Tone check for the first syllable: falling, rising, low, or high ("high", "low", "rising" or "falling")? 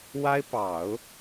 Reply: high